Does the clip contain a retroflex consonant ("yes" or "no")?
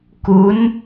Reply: no